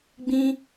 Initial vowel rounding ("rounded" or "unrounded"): unrounded